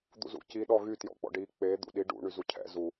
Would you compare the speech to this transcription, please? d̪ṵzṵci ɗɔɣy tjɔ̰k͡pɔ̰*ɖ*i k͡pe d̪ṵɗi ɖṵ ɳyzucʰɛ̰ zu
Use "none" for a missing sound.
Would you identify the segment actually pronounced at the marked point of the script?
ɖ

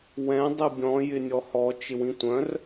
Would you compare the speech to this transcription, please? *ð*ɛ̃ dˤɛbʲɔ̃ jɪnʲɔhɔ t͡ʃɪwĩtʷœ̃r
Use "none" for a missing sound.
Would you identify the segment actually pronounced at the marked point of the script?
w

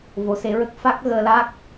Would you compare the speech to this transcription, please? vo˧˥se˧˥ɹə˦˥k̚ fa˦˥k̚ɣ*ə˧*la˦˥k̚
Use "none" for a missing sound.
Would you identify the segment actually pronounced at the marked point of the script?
əː˧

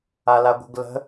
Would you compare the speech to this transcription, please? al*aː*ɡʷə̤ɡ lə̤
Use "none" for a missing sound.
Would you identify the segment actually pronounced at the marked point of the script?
a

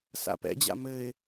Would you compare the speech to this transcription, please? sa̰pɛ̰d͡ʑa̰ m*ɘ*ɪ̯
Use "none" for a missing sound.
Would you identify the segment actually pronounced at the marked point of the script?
ɘ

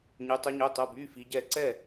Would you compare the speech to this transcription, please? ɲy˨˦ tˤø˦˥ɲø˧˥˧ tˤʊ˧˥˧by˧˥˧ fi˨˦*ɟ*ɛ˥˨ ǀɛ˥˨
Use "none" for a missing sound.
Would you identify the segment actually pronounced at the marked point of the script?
ɟ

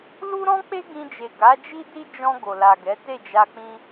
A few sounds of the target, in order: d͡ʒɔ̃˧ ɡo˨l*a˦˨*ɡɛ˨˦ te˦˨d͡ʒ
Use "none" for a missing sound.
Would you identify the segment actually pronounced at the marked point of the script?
a˨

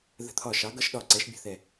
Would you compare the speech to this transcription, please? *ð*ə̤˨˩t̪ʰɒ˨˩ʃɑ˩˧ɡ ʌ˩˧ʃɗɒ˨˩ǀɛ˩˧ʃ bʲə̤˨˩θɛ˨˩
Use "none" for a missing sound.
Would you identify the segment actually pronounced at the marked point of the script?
ð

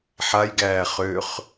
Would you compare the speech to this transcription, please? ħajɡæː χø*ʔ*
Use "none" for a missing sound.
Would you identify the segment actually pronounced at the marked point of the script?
χ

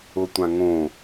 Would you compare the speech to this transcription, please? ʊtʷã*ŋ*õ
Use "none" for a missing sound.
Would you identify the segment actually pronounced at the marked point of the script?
ŋ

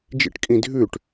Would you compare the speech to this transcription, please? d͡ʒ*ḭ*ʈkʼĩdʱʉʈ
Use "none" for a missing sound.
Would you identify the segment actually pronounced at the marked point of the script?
ḭ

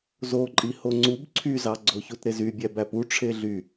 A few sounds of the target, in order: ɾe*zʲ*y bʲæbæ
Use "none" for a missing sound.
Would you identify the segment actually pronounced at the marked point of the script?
z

